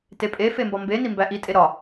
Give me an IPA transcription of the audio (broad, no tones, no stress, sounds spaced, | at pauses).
t e pʼ e f e m b ɒ m b e n i m b æ ʔ i tʼ e ɾ ɒ